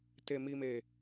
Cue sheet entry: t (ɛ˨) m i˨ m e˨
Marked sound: incorrect: e˨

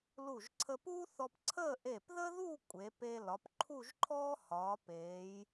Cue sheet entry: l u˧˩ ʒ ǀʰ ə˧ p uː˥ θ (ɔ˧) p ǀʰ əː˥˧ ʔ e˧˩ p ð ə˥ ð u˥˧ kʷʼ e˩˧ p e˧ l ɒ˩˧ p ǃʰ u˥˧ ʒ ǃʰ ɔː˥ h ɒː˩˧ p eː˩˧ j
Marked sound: correct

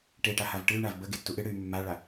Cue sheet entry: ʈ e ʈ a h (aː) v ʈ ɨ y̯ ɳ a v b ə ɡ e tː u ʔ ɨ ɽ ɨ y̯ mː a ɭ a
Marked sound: incorrect: a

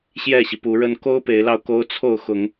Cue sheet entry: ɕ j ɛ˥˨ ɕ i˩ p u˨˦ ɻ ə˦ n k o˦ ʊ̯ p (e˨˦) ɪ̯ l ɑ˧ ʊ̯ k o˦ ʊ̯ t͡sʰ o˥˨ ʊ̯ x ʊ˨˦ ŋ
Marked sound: correct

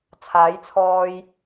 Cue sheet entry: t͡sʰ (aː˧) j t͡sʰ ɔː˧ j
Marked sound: incorrect: aː˨˥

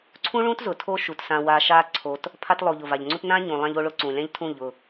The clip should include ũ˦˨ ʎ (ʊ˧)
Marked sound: incorrect: ʊ˦˨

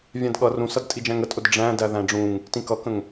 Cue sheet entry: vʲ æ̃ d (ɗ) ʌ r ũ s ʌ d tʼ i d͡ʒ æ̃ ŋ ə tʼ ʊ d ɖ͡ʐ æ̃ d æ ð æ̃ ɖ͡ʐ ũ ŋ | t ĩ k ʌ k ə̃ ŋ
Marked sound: incorrect: ɠ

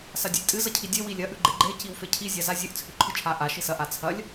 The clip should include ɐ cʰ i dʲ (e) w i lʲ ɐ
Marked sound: correct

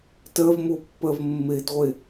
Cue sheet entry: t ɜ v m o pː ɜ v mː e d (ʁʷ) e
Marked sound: correct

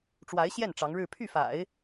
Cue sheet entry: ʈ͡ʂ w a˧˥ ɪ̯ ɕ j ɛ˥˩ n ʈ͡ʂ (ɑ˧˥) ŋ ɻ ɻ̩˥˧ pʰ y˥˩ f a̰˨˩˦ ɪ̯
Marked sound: correct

